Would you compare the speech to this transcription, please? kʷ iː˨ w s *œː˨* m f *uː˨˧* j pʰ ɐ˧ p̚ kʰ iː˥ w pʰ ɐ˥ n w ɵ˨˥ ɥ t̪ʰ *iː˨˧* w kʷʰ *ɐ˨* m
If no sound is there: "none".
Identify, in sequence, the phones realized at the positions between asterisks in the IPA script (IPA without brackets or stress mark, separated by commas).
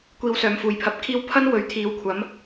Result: œː˨, uː˨˧, iː˨˥, ɐ˨˥